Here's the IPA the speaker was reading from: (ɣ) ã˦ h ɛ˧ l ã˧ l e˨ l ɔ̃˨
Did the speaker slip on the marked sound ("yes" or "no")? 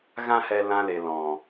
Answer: no